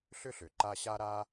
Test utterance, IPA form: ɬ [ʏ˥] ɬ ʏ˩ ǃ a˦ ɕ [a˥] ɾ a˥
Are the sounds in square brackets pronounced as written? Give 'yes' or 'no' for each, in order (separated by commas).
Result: yes, yes